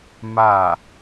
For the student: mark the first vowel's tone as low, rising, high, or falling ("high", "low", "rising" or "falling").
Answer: falling